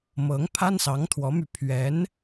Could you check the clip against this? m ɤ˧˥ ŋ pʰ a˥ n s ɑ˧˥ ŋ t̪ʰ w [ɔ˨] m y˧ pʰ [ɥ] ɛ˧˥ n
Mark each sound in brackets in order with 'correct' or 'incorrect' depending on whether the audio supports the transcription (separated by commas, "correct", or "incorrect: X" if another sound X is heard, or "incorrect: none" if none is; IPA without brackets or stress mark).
incorrect: ɔ˧˥, correct